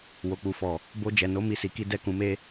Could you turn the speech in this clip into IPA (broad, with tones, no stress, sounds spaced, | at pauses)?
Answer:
w o˨ k͡p u˨ f ɔ˨ | b o˧ d͡ʒ ɛ˨ n o˨˦ m i˦˨ s i˧ k i˦ d ɛ˦˨ k ũ˨˦ m e˦